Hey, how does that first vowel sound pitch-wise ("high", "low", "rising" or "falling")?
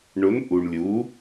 rising